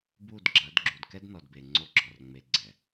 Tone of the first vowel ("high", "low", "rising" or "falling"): falling